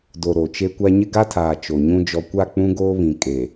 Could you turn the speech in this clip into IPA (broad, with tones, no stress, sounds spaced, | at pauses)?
d o˨ ɾ o˨ t͡ʃ e˦ kʷ a˦ ɲ ɪ˦ ɡ a˦ tʰ aː˨ t͡ʃ o˨ ɲ ũ˦ d͡ʒ ɔ˨ kʷ a˦˨ k͡p ũ˦ ɡ oː˦ β ĩ˨ kʼ e˨